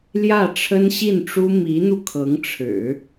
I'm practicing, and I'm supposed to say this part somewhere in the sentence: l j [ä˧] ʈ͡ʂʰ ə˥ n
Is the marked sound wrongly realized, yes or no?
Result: yes